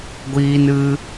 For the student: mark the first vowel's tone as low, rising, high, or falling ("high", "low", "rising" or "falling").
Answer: high